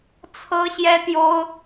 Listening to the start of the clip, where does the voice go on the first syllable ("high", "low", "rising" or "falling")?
high